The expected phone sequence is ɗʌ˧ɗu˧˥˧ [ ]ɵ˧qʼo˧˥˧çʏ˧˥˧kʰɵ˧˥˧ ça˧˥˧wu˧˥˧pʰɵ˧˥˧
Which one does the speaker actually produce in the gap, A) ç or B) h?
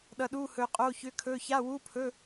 B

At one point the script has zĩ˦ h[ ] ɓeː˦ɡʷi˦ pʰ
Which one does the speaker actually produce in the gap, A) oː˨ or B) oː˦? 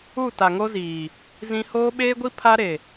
B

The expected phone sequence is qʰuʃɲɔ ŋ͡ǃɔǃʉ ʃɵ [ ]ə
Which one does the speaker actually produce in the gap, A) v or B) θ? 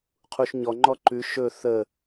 B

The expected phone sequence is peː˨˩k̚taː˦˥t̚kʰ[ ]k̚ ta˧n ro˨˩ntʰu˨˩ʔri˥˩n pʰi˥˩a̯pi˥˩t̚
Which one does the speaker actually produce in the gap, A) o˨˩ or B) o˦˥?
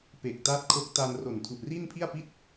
B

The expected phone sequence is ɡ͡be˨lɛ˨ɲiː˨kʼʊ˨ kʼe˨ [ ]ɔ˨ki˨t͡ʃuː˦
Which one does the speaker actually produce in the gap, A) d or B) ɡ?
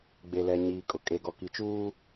B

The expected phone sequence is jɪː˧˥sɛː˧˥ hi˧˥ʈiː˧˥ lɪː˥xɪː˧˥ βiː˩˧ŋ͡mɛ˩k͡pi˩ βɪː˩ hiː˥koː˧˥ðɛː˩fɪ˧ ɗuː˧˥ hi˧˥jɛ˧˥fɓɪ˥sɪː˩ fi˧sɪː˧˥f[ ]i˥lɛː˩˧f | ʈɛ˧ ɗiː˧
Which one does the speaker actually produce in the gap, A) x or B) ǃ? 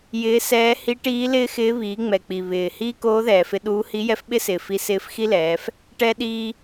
A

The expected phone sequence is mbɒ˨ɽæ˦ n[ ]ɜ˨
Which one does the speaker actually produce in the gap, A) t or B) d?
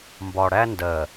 B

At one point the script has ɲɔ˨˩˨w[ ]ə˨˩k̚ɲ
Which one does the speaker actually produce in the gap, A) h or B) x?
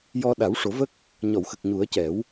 B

